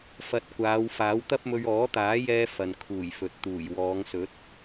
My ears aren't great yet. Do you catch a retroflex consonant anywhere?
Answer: no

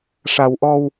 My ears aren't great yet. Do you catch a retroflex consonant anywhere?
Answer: yes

